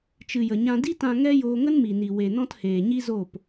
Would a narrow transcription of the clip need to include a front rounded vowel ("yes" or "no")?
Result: no